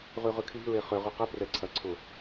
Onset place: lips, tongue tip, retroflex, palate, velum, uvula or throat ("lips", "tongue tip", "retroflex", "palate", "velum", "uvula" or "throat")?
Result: uvula